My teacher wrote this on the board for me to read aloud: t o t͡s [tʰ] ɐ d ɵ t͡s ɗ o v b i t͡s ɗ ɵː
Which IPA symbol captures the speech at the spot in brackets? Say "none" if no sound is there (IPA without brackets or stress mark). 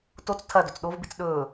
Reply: tʰ